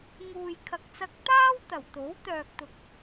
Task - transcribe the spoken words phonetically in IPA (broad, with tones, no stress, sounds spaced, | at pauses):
ŋ uː˨ j kʰ ɐ˨ k̚ t͡s ɐ˧ k̚ t̪ aː˥ w t̪ ɐ˨˩ w t̪ o˨˥ w t̪ œː˧ k̚ t̪ ʊ˧ k̚